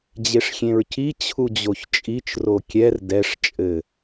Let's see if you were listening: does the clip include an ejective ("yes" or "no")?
yes